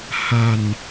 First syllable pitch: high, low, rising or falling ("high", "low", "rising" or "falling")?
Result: low